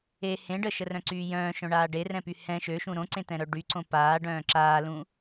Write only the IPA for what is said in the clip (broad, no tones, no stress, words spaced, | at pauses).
e hẽ ɖəʃərœ̃ǀyː jœ̃ːʃœ̃ɳaː ɖerɛ̃py hɛ̃ ʃøʃũ ɾõǀẽt̪ɛ̃ɾœ ɖyǀõ paːɖœ̃ː ǁaːlũ